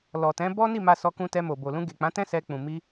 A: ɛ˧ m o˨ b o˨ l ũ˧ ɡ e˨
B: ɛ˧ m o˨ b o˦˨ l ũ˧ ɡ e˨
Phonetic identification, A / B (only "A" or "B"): A